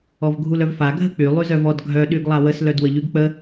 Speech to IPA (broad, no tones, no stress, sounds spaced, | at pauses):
ɔ v ɡʱ u l œ v f a ɡʱ ə k͡p y lˠ y z œ v ɔ d ɡʱ œ ɗ y ɡ lˠ a w ə s l œ d w ə ʎ y ɡ k͡p ə